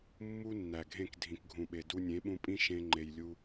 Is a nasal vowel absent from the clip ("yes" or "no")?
no